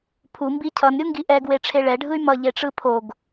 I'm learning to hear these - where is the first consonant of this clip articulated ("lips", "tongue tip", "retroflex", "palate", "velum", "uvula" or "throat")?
lips